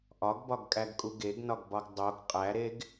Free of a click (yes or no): yes